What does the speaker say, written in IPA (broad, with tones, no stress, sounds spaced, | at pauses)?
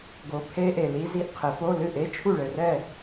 ɡ o˨˥ pʰ e˦˥ ʔ e˨ l i˦˥ z i˥˨ ʔ qʰ ɘ˨˩˦ f o˧˥˧ l ɨ˥˨ ʔ e˧˥˧ t͡ʃʰ u˥˨ ɭ ɘ˨ r ɛ˥˨